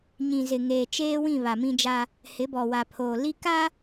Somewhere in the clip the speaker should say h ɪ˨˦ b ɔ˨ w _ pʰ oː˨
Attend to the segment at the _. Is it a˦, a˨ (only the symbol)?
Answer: a˨